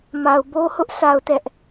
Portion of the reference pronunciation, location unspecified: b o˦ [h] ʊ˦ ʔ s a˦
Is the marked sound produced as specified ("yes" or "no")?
yes